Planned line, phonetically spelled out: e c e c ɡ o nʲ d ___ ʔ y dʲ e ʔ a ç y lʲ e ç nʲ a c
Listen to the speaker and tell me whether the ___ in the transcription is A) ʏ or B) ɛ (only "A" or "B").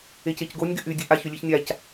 A